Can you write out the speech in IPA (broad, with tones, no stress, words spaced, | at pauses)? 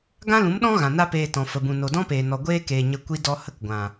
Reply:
ɡã˦lũ˨˦mɗɔ̃˦ ɣã˨na˦peː˧tɔ̃˨ fə˨bũ˨ no˨dɔ̃˦ peː˨nɔ˨ɡʷeː˧keː˨ ɲə˧ kʷi˧dɔ˧ hə˦kɡʷã˨